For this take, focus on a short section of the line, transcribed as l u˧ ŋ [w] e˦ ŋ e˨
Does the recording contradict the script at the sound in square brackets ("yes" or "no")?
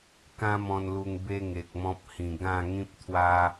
yes